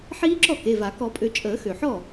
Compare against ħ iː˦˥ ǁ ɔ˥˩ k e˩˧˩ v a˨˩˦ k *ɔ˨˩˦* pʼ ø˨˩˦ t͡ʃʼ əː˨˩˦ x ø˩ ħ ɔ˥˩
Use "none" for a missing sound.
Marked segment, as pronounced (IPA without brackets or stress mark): ɔ˨˩˦